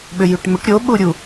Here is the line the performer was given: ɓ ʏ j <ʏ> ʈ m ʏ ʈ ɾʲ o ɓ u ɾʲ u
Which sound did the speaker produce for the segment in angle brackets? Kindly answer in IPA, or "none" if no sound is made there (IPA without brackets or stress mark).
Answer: y